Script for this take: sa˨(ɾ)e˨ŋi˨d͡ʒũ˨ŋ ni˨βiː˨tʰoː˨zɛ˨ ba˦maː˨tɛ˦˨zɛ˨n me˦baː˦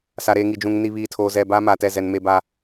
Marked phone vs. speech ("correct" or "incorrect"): correct